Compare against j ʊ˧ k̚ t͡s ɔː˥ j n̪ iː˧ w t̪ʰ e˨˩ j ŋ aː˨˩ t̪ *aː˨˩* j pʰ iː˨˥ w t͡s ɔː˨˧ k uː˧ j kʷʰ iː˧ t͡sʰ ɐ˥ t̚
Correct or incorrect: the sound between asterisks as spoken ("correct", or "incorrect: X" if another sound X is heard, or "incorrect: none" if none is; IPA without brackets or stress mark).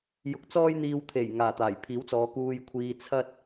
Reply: correct